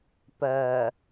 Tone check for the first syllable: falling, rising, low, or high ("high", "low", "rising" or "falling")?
low